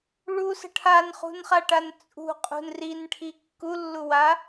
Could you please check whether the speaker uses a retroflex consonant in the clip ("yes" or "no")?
yes